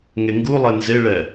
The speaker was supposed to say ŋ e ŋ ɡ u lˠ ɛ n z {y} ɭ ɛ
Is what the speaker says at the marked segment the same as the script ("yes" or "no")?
no